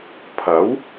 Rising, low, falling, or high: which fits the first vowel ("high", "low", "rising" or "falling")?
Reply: rising